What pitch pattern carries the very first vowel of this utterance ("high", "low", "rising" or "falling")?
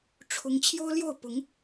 high